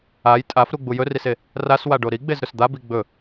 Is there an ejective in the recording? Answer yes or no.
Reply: yes